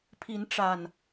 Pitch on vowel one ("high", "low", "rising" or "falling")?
rising